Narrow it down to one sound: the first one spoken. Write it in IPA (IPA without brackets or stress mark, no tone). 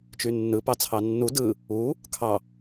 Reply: t͡ʃ